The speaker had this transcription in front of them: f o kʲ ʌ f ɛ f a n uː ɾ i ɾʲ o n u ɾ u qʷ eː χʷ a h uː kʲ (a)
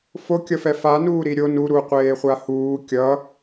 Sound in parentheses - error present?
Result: yes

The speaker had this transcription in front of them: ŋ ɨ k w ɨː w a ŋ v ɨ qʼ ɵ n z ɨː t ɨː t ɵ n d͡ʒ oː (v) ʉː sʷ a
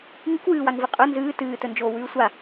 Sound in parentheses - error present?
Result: yes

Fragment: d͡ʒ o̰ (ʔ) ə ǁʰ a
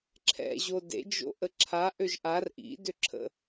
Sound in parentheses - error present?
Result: no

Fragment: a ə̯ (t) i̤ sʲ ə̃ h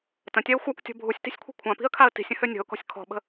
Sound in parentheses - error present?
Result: no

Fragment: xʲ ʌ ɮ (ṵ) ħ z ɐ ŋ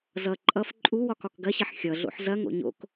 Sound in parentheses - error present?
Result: yes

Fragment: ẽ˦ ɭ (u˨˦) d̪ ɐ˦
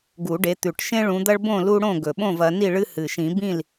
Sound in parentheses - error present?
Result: yes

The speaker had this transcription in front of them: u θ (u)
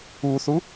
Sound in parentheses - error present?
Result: no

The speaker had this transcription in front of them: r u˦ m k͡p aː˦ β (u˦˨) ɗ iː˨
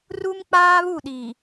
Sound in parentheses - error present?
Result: no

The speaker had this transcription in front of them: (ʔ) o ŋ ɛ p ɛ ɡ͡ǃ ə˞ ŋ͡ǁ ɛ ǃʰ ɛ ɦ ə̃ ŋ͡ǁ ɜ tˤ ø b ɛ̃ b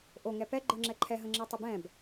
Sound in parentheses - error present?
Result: no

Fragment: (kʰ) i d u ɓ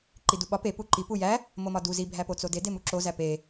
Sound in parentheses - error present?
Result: yes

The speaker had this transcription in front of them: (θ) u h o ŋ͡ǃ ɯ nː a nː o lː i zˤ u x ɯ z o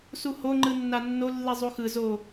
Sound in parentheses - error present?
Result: yes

